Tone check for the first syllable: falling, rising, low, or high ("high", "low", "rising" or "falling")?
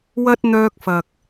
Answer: high